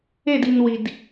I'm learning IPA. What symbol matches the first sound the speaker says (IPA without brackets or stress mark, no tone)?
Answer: e